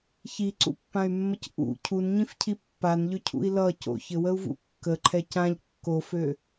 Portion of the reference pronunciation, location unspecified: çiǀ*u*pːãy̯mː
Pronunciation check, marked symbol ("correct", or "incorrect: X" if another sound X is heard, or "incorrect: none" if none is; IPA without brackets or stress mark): incorrect: ṵ